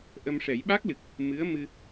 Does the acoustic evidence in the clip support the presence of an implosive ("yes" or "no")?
yes